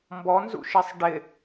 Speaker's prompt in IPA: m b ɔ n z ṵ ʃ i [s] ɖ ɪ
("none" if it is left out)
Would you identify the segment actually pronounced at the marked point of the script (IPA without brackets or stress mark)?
sˤ